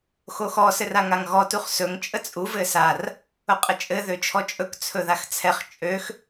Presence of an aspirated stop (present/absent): present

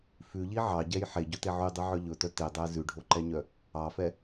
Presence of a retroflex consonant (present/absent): present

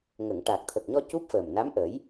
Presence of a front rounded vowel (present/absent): absent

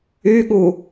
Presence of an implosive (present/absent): present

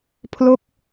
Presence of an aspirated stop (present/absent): present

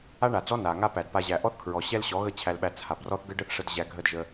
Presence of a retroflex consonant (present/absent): present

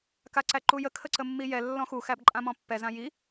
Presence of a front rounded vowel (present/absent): absent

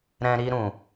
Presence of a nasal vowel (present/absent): present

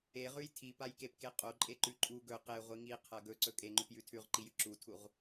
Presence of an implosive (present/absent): absent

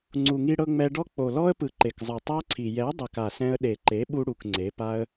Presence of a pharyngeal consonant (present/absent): absent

